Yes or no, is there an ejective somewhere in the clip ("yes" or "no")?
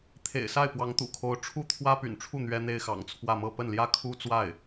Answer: no